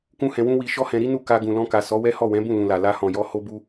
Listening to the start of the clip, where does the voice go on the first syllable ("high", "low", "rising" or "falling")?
high